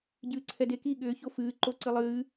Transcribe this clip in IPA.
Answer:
ɟ ɨː ǀʰ ɛ d e k i ɠ ʏː ç o f ɨː ǃ o ǀ ɨ lˠ ɨː

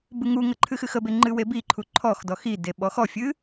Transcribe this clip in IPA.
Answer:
b ɨ ŋ u ŋ ə ǃʰ ɨ x ɨ x ə b e ŋ͡ǃ ɨ w e b i ǃʰ u ǃʰ ɔ x d ɔ x i d e ɓ ɔ x ɔ fʲ ɨ

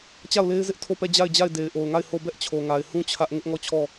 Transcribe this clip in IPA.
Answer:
t͡ɕ a˦˨ ʊ̯ l e˦ ɪ̯ z ɪ˦ ʔ tʰ o˦˨ p ɛ˦˨ d͡ʑ a˦˨ ɪ̯ d͡ʑ a˦˨ ɪ̯ d e˨ ɪ̯ ʔ o˨ ʊ̯ ŋ a˦˨ ɪ̯ h o˦˨ b ɛ˦ ʔ t͡ɕʰ o˨ ŋ a˨ ɪ̯ h ũ˦ t͡ɕʰ ä˦ ʔ ŋ ɪ˦ ʔ ŋ ɔ˦˨ t͡ɕʰ ɔ˦˨

